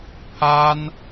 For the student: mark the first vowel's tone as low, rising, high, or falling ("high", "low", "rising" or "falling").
high